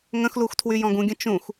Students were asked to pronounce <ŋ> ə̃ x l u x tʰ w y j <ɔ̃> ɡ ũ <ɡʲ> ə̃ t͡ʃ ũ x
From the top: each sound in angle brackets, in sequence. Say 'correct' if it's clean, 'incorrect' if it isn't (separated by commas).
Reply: correct, correct, correct